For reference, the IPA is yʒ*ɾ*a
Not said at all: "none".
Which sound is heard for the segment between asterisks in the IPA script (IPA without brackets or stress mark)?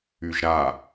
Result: ɾ